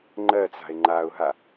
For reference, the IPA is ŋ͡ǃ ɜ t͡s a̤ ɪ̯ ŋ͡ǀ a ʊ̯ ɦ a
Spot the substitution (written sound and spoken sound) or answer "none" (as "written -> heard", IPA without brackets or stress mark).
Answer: ŋ͡ǀ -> ŋ͡ǃ